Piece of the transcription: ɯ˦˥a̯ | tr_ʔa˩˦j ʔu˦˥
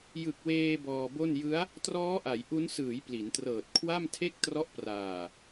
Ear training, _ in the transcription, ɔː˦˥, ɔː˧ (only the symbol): ɔː˦˥